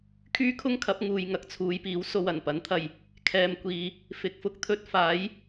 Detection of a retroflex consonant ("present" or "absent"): absent